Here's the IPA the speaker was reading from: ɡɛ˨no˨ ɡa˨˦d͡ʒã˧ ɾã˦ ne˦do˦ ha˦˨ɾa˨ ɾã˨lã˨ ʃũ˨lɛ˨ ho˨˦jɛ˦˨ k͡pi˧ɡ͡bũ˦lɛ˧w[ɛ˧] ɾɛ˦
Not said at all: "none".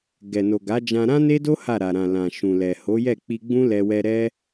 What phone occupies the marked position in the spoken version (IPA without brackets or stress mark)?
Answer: ɛ˧